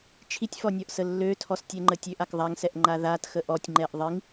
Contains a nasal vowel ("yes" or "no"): no